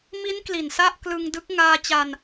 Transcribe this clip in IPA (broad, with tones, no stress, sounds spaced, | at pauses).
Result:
m i˦˥ n k l i˨˩ n s a˥˩ ʔ k l ɯ˧ ŋ d ɯ˦˥ k̚ ŋ aː˧ t͡ɕ a˧ n